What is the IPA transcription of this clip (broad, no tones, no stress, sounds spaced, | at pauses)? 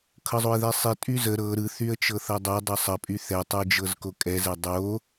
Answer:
kʰ ɤ zˤ o ɪ̯ ð ɛ sˤ i tʼ y z ə ɾ ɤ ɾ ɯ θ y ə̯ t͡ʃ ɤ θ ɐ dˤ o dˤ ɤ sˤ ə pʼ y θ ɛ tˤ ɯ d͡ʒ ɤ z k o kʼ ɛ z ɛ dˤ o